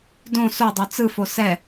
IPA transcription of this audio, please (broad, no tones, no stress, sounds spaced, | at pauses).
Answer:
d õ s o dˤ o t͡s ɯ f o s ɛ